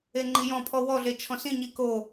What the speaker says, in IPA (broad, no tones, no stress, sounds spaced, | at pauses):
e ŋ͡ǃ i j ɔ̃ pʰ ɔ w ɔ ɮ e t͡ʃʰ ɔ̃ s ĩ ɲ i k o